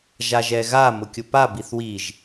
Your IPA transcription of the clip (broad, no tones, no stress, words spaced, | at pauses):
ʒaʒɛɣa mʊkʲʊpa biθwiʒ